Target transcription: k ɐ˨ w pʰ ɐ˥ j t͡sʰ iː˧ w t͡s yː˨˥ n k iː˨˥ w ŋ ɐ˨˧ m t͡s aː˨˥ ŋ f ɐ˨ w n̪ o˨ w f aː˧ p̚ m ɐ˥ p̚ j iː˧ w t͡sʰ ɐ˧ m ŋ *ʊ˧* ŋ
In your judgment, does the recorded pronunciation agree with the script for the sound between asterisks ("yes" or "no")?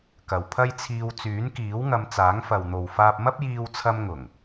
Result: no